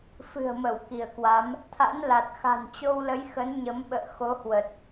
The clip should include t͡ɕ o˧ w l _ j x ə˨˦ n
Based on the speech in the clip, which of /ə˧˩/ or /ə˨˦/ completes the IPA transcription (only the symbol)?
ə˨˦